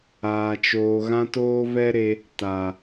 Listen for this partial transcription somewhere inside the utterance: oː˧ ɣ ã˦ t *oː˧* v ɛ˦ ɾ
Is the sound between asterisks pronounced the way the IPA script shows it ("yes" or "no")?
no